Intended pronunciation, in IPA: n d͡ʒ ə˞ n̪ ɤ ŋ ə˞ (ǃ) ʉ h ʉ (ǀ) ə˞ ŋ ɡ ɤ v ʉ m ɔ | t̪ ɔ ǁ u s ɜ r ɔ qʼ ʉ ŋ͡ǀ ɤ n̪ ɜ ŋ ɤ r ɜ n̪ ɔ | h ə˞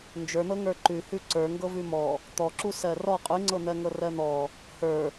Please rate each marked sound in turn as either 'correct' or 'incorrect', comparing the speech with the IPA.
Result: correct, correct

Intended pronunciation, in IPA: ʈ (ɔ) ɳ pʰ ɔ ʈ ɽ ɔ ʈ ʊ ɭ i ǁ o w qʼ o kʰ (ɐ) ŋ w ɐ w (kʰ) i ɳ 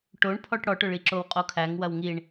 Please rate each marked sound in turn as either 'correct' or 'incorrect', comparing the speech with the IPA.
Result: incorrect, incorrect, incorrect

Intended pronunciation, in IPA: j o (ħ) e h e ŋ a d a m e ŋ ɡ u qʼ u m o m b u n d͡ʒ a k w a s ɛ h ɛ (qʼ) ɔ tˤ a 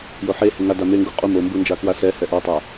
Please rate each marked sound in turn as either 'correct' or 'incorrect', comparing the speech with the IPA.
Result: correct, incorrect

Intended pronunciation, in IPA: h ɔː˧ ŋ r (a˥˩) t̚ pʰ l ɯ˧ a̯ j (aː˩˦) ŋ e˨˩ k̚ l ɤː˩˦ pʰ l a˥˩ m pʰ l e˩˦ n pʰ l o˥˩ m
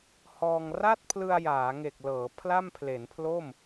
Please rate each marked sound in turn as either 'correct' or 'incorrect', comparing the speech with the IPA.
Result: correct, correct

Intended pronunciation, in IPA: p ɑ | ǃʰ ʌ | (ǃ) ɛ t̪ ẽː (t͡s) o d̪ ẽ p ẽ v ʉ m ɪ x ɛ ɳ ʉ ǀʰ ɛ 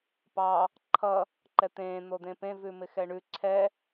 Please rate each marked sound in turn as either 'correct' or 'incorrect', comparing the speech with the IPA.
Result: correct, incorrect

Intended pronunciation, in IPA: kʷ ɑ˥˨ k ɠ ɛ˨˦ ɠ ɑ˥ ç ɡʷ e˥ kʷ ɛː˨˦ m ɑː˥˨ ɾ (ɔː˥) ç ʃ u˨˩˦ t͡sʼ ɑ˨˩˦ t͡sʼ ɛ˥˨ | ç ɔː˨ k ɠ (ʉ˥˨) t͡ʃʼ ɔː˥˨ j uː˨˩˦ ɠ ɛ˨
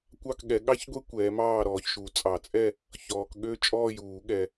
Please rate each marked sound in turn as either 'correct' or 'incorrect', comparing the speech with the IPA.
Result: incorrect, incorrect

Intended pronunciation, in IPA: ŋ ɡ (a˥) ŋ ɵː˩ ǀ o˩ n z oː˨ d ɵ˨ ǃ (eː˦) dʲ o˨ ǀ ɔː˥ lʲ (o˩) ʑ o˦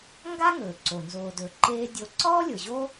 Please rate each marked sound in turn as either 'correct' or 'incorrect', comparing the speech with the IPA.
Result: correct, correct, incorrect

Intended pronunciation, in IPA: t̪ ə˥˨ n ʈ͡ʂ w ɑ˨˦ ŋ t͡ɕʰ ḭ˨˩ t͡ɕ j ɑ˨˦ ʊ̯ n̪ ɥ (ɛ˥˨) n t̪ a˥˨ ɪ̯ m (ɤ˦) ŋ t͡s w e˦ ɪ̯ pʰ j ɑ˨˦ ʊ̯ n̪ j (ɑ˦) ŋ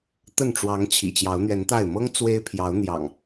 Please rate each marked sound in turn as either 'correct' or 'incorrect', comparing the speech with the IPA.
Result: incorrect, correct, incorrect

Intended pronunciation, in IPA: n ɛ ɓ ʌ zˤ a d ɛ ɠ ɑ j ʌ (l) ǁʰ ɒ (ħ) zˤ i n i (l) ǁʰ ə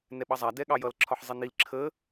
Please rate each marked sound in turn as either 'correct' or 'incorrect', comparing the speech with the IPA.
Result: correct, correct, correct

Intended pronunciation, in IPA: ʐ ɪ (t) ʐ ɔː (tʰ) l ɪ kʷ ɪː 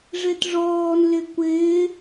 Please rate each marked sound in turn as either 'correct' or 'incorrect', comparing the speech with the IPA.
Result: correct, incorrect

